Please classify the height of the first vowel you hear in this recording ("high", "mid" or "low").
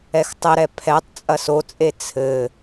mid